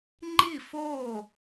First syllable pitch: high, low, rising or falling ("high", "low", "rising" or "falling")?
falling